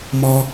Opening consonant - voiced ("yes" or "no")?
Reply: yes